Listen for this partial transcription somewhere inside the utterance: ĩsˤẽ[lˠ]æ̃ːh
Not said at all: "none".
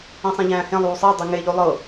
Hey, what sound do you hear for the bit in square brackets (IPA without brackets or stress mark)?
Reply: ʎ